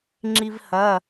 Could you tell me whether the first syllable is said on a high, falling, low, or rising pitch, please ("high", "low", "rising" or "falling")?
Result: high